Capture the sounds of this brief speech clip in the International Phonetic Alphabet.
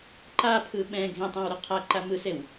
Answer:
ǃ a pʰ ɯ ɓ ɛ̃ ɡʱ ẽ tˤ ã w ɾ ɯ qʰ a ǃ a m ɯ s e w

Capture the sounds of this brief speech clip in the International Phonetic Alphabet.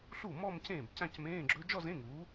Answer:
ɬ u˥˩ m ɔ˥˧ m c ẽː˥˩ b c ã˥˧ c m ẽː˧˥˧ ɡ͡ǁ ɵ˦˥ d͡ʒ ɔ˥˧ z ẽ˧˥˧ ŋ uː˨˥

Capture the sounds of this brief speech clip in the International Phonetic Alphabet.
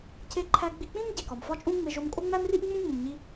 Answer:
cʰ e˧ ǃʰ æ˧ ɡ͡b i˧ k͡p ĩ˥ m ɟ e˩ k ɒ˩ m f ɒ˥ t͡ʃʼ ũ˥ ŋ͡m e˧ ʒ o˧ m kʼ o˥ ŋ͡m æ˥ m r i˥ ʔ ŋ͡m ũ˥ ŋ͡m ũ˩ m ɲ i˧

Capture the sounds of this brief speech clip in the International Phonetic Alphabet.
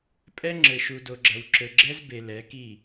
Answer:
pʼ ɛ˦ ŋ͡ǁ ɘ˨ ʃ u˨ d o˨ ɡ͡ǁ ɐ˨ w ǁ ɘ˨ ɡ͡ǁ ɛ˦ z b e˨ l ɛ˨˦ k i˦˨

